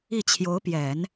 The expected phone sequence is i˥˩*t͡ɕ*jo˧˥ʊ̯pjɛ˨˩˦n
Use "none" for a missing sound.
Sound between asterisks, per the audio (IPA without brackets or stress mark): t͡ɕʰ